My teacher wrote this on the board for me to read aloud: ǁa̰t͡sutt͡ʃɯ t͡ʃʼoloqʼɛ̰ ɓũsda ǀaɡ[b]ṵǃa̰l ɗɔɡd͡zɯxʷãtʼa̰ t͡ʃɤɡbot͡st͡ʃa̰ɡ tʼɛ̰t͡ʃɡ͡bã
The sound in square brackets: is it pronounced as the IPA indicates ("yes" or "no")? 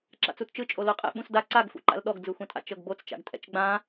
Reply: no